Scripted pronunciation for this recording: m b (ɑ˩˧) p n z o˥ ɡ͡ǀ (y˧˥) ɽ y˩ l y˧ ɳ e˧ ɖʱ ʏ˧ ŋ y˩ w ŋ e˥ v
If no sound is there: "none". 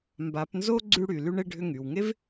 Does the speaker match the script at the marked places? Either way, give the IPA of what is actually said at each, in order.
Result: a˩˧, y˧

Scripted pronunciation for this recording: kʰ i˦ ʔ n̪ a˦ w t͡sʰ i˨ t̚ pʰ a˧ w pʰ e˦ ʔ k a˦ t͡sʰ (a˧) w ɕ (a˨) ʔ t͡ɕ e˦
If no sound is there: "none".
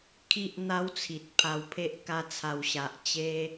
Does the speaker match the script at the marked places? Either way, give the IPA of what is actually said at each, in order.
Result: a˧, a˨

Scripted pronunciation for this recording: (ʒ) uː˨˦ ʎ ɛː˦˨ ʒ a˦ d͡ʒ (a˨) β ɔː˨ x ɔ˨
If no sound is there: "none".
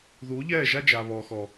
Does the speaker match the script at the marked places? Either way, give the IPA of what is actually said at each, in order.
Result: ð, a˨

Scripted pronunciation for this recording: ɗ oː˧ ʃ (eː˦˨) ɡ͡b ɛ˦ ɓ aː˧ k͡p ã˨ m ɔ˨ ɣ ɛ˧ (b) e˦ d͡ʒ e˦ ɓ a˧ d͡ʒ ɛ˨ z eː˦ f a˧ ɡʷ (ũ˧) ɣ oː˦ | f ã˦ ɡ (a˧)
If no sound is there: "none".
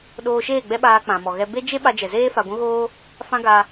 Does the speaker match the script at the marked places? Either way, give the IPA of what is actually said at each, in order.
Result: eː˦˨, b, ũ˦, a˧

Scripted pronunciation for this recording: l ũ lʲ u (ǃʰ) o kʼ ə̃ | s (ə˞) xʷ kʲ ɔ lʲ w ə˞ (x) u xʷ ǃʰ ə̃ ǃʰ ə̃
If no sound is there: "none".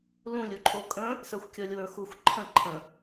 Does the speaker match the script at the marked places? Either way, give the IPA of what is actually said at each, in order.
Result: ǃʰ, ə˞, x

